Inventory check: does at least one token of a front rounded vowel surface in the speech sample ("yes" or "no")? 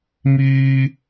yes